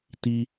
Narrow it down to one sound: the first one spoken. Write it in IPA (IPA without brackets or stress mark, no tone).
t